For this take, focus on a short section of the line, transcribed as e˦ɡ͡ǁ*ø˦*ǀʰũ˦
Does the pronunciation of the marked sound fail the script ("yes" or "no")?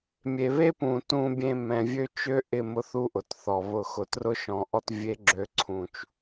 no